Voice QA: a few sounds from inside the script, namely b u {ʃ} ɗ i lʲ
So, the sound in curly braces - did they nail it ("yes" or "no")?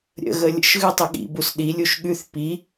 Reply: no